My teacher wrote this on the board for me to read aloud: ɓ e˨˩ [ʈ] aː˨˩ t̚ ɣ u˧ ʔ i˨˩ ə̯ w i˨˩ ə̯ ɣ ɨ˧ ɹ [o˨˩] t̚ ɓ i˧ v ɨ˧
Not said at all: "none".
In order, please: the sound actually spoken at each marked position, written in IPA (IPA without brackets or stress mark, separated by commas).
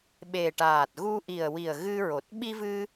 ʈ, o˨˩